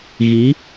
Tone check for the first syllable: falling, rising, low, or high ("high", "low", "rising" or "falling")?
rising